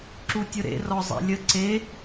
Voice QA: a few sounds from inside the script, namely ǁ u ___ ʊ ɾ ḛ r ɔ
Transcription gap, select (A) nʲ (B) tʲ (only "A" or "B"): B